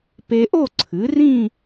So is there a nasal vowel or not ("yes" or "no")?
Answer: yes